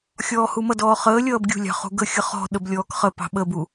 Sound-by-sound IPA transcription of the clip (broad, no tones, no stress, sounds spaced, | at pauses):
xʲ ɔː h u m ʌ d ɔː χ əː lʲ ʌː b ɡʲ ṳ lʲ ɑ̤ χ ṳ ɡ ə xʲ ʌ χ ɔ̤ ɗ ə b lʲ ɔː k χ ə p ɑ̤ ɓ ə b u